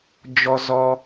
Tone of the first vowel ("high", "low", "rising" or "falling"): high